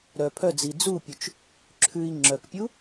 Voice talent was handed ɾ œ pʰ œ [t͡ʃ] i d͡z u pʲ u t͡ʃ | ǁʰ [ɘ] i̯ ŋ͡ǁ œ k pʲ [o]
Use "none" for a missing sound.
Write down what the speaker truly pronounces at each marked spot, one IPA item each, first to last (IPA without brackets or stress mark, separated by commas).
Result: d͡z, ʉ, u